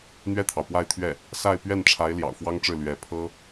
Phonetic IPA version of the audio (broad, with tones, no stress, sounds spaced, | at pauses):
n̪ ɥ ɛ˥˩ t̪ʰ ɑ˩ ʊ̯ p w a˥˧ ɪ̯ t̪ʰ ɥ ɛ˥˩ | s a˥˧ ɪ̯ p ɥ ɛ˥˩ n ʈ͡ʂʰ a˧˥ ɪ̯ l j ɑ̰˨˩ ʊ̯ f w ɑ˥ ŋ ʈ͡ʂ ɻ̩˥˩ l ɥ ɛ˧˥ pʰ ɤ˥